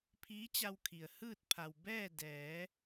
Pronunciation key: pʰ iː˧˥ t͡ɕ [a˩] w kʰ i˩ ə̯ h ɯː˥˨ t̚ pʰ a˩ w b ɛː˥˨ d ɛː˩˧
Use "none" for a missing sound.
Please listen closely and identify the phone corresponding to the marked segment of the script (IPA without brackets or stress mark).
a˧